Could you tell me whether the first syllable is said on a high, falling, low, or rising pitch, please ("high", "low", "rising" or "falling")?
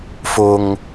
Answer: high